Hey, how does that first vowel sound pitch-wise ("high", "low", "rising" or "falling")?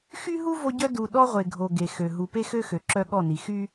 high